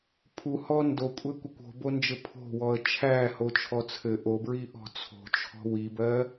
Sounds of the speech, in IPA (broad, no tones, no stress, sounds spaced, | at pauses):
pʰ u h ɔ n d o kʷʼ ɘ kʷ ə kʷ o̤ b o n d͡ʒ ɘ pʰ o̤ w ɔ ə̯ t͡ʃʰ æ h o t͡ʃʰ ɔ t͡sʰ ɘ ʔ o b ɹ i ʔ ɔ̤ t͡sʰ o̤ t͡ʃʰ ɔ̤ w i b ɜ